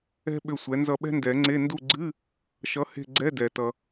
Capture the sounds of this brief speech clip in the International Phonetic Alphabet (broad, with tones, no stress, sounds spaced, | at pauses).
ɛ̤˥ ɓ ʏ˦˨ sʷ ɛ˨˥ n z ʌ˦˨ ɓ ɛ̤˥ n d ɛ˨˩˦ ŋ͡ǀ e˧˥˧ n d u˦˨ ɡ͡ǀ ɨ˧˥˧ | ʃ ʌ˨˥ h e̤˦˨ ɡ͡ǀ ɛ˧˥˧ d ɛ˩ t ʌ˩